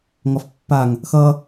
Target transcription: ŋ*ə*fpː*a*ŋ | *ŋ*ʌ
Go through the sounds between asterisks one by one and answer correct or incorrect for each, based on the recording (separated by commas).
incorrect, correct, incorrect